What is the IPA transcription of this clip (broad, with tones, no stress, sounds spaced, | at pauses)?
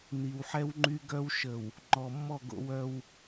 n i˨ w ħ ɛ˦ w ŋ͡ǃ y˦ ɡ œ˦ w ʃ ə˨ w | ŋ͡ǃ ɔ˨ mː ɔ˦˨ ɡ o̰˦ w œ˦ w